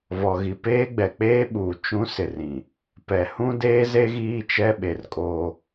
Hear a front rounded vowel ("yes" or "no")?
no